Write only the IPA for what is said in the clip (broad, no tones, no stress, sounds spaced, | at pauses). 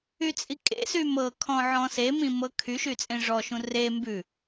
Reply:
y t͡sʼ i kʼ ḛ s y m ɤ kʰ ɔ̃ ʕ ɔ̃ s e m ĩ m ɤ kʰ y ʃ y t͡sʼ ẽ ʐ ɔ ʃ ũ r e m b ʉ